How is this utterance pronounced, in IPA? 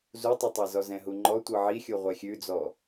z u tˤ ɯ tˤ ɛ z ɔ z ɛ̃ ɦ u ŋ͡ǃ ɔ tʷ ɯ ʕ i xʲ u ʁʷ ɛ xʲ ʉ d͡z ɔ

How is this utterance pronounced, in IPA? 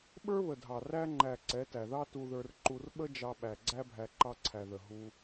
ɓ ə˞˦ β ə˨ dʱ ɑ˨ r æ˧ ŋ͡ǃ æ˨ ǀ ɛ˨˦ t æ˨ ð ɑ˦ t u˧ ð ə˞˧ r ǃ u˧ r ɓ ə˦ d͡ʒ ɑ˧ ɓ æ˨ ɡ͡ǀ æ˦ bʱ æ˧ ǃ ɑ˧ ǀʰ æ˨ ð ə˨ ɦ u˧

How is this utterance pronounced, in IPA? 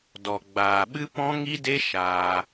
d ɔ˨ ɡ͡b aː˨ ɓ ɨ˦ p ɔ̃˦ ŋ i˦ d e˦ ʃ aː˧

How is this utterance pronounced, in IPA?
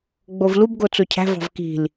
ɡ͡b o v l u b ɡ o t͡s o cʰ æ̤ v ɑ̤ v k i̤ l

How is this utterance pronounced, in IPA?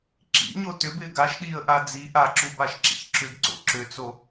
ǁ ḭ ɲ o t ʏ b ɪː ɡ a ʃ ɗ iː ə̯ ʔ a d͡z i ʔ a ǁ u b a ʃ ǁ ḭ ç ǁ ʏ ɡ ǀ o̰ ǁ ʏ t͡s o

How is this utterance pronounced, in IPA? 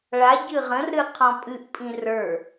ɭ a ɟ ɨ ʁ ə̃ r ɾ ɨ qʰ ɔ̃ pʼ ɨ ʔ pʼ ĩ r ə˞

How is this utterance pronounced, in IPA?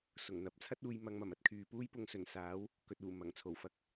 s ʊ˨˩ ŋ n̪ ɐ˨˥ p̚ t͡sʰ ɐ˥ t̚ uː˨ j m ɐ˨ ŋ m ɐ˨˩ m ɐ˧ t̚ kʰ yː˨ p uː˥ j p ʊ˧ ŋ s ɵ˨˩ n s aː˨˥ w | k ɵ˨ t̚ uː˨˩ m ɐ˨˩ ŋ t͡sʰ o˨˩ w f ɐ˨˥ k̚

